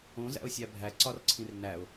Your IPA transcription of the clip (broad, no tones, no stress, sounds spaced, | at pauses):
õ z æ̰ ʊ̯ sʲ æ bʱ æ ǀ ɒ r ǀʰ ĩ r n æ ʊ̯